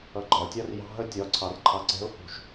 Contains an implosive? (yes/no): no